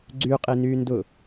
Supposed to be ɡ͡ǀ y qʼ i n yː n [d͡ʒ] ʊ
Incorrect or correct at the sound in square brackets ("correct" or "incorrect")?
incorrect